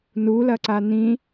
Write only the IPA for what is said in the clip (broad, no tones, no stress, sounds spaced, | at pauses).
n u l ɐ ǀ a n̪ ĩ